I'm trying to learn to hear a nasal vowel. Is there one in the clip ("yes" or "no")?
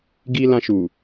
yes